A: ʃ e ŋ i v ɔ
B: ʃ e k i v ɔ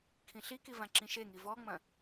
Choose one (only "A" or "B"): A